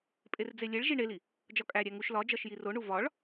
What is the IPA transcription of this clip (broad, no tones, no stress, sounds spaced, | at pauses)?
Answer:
pʼ e r d͡z e lʲ e ɭ ʒ i ɳ e l i | d͡ʒ ɒ kʼ æ ɾʲ æ ŋ u ʃ l ɒ d͡ʒ ɒ ʃ j i r o ɳ u v ɒ ɭ